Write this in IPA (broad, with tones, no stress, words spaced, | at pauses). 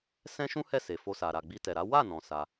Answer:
sɛ̃˦ʃũ˦hɛ˦˨ se˨fo˧sa˨ɾa˨ ɡ͡bi˧tɛ˨ɾa˨˦ wa˦˨ nɔ̃˧sa˧